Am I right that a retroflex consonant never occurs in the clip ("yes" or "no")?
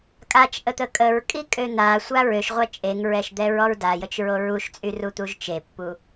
yes